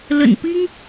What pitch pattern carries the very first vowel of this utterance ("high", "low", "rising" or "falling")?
low